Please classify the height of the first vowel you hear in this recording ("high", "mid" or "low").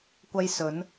low